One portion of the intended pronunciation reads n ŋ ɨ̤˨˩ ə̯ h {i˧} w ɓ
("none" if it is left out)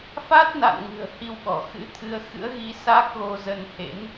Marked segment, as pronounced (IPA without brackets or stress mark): i˧